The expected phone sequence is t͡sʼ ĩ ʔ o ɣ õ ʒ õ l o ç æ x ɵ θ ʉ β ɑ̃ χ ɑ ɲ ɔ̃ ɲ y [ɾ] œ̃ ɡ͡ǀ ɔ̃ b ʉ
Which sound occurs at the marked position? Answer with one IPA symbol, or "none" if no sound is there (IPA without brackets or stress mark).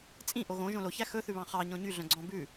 ɮ